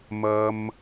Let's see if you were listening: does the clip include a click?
no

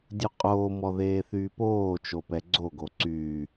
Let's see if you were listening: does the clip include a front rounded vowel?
yes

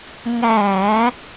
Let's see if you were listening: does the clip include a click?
no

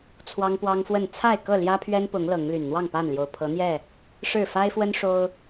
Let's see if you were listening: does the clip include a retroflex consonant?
yes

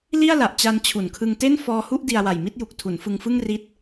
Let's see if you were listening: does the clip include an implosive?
no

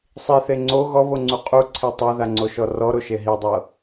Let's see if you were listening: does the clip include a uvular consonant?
yes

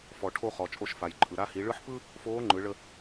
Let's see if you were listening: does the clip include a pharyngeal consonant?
yes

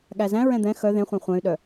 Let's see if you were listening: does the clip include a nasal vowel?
yes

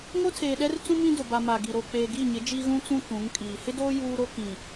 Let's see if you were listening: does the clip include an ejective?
yes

